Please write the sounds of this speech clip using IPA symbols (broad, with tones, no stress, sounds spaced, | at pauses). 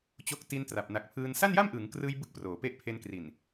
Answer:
t͡ɕ o˦˥ k̚ t i˦˥ n t r a˨˩ p̚ n a˨˩ k̚ pʰ ɯː˧ n s a˥˩ n j a˥˩ m ʔ ɯː˩˦ ŋ k r ɯː˧ j b ɯ˥˩ k̚ p r oː˩˦ p e˥˩ ʔ pʰ e˧ n k r i˨˩ n